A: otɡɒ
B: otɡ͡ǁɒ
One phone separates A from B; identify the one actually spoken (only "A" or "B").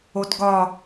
A